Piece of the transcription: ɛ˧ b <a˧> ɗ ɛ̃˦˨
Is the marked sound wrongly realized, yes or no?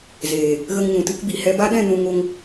yes